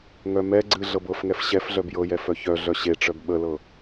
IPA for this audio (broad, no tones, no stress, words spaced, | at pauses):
ŋœmɛɡ͡ǀɨ ɮɤbɤfŋɛf ɕɛf ɮœbjɤjɛ fœçœɮœ ɕeʈ͡ʂœb ɓəlɤ